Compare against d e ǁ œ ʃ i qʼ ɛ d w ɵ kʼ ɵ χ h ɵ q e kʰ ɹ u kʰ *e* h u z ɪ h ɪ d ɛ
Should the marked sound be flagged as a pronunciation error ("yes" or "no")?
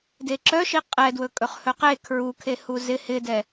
no